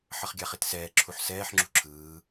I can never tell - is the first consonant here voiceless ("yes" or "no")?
yes